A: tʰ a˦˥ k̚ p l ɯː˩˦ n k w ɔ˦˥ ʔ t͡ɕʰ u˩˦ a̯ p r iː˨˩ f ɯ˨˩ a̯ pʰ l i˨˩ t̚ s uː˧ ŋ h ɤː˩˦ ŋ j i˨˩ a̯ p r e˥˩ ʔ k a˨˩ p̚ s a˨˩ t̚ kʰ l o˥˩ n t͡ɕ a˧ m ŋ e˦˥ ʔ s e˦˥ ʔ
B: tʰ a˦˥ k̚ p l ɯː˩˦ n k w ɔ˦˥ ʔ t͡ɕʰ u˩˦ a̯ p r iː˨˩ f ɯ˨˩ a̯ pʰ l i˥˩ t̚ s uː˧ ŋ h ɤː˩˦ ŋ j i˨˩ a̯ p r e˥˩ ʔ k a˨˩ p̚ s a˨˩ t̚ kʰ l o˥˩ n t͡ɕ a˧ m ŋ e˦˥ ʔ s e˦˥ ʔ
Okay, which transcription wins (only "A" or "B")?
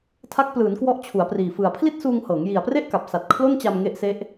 B